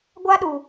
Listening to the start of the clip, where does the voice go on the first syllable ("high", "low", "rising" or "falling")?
high